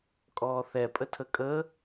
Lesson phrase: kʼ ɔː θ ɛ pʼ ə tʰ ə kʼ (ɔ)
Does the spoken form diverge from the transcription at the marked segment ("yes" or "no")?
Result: yes